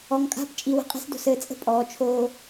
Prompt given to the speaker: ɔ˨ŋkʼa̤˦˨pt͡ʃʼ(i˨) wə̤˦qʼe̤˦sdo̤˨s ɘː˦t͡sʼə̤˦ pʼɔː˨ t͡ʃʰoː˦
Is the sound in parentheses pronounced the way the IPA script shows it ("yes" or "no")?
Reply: yes